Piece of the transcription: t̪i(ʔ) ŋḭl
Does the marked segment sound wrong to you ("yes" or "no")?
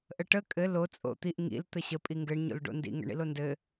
no